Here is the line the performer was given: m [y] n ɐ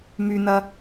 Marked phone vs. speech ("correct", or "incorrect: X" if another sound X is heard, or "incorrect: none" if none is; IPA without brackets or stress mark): correct